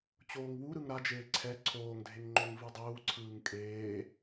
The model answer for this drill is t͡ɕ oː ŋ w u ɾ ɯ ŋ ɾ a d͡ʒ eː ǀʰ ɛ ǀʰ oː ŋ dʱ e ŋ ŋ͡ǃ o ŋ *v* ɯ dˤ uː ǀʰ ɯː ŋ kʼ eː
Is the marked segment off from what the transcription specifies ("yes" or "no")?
no